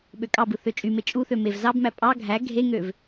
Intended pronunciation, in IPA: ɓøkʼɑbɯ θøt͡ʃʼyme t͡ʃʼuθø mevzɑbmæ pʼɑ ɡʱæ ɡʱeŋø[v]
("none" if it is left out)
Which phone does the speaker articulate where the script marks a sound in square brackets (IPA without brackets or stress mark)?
v